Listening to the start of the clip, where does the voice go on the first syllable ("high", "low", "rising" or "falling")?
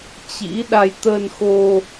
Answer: rising